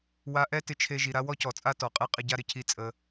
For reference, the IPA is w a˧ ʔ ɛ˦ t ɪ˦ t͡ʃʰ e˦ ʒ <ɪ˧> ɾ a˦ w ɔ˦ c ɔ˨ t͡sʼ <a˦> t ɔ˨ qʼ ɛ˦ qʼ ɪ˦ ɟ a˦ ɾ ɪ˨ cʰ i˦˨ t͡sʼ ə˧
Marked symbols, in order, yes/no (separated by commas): no, yes